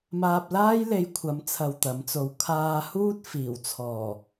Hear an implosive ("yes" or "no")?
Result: no